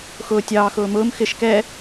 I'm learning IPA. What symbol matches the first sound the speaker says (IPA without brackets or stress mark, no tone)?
x